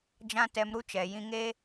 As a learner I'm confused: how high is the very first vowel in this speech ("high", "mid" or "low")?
low